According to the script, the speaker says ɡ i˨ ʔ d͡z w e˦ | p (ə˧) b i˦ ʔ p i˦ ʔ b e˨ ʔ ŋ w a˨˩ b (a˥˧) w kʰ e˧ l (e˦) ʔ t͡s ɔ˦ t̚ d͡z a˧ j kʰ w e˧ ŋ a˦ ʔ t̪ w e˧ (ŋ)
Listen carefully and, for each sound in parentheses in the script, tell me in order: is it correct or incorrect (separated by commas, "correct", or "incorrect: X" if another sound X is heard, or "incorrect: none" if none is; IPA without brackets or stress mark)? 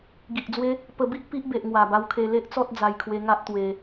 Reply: correct, incorrect: a˧, correct, incorrect: none